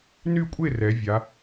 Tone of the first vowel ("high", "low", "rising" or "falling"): falling